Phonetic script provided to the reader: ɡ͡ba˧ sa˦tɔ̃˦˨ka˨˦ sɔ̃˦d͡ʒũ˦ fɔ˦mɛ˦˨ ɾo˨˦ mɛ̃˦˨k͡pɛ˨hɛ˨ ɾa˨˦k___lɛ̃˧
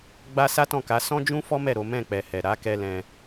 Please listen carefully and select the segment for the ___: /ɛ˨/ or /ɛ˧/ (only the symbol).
ɛ˧